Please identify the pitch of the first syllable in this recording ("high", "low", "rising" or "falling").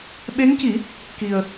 rising